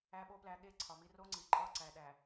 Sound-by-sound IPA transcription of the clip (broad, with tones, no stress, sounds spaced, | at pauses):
æ˨ ɓ o˨ p l æ˨ ɠ e˦ ǀʰ ɒ˨ m i˦ r o˦ ŋ͡ǀ i˨ ǃʼ ɒ˦˨ ǀ æ˨ ɗ æ˨